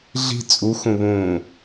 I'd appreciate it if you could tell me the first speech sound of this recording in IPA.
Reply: ɮ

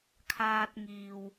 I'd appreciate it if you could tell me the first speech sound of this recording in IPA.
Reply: kʰ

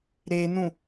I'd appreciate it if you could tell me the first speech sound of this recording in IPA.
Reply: ɾ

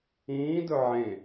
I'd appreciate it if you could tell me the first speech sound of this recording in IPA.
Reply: ĩː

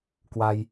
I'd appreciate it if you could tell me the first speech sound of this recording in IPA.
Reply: k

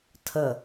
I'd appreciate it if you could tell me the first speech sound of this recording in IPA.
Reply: tʰ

